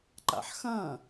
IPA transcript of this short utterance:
ǃ a̰ ħ x ɐ̃

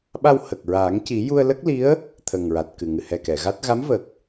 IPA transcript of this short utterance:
ɓ a˧ w h ə˨˩ k̚ ɹ a˨˩˦ ŋ c i˨˩˦ j u˧ ə̯ l ə˦˥ k̚ l i˧˥ ə̯ | t̪ʰ ə˨˩ ŋ ɹ a˨˩ t̚ k ɨ˨˩ ŋ ɨ˨˩ h ɛ˨˩ k ɛ˨˩˨ ɣ a˦˥ t̚ ɣ a˧˥ m v ə˨˩ k̚

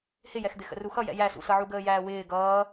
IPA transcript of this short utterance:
h ɪ j ɛ x d̪ ɪ x ə̰ r u x ʌ j ɛ̰ j æ s ṵ s ʌ ʕ u ɡ əː j æː w ɪː ɡ ʌː

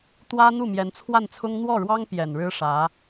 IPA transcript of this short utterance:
t̪ w ä˥ n̪ u˥˩ m j ɛ˧˥ n t͡sʰ w a˥˩ n t͡sʰ ʊ˥ ŋ n̪ w ɔ˥˩ ɻ w ɑ˥ ŋ p j ɛ˨˩ n ɻ ɻ̩˥ ʂ ä˧˥

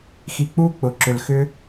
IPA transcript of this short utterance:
x i˨ k͡p uː˥ k͡p ʊ˩ ǁ ʏ˩ l x ʏ˦

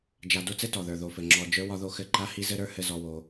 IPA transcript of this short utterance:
d͡ʒ a˧ d o˦ t͡s ɘ˦ t ɔ˨ ð ə˞˨ ð o˨ f ɘ˨ ŋ͡ǁ ɔ˨ d͡ʒ ə˞˦ w ɒ˦ ð o˦ x ɘ˦˨ ǃ a˦ h i˦ z ɘ˦ ɾ ə˞˦ h ɘ˦ z ɔ˧ w o˧

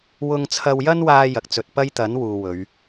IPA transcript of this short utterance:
w ʊ˧ ŋ t͡sʰ ɐ˧ w j ɐ˥ n w aː˧ j ɐ˨ k̚ t͡s ɵ˨ t̚ p ɐ˥ j t̪ ɐ˨˥ n w uː˨ w ɵ˨˧ ɥ

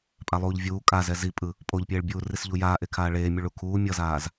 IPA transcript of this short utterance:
pʼ a lˠ uː ʎ vʲ uː kʼ a z ɛ z i pʼ ɯ | pʼ o ʎ pʲ eː ɭ bʲ uː r i s ʎ u j aː ʔ e kʰ aː ɭ eː mʲ u ɭ u kʰ uː mʲ ʌ z aː z

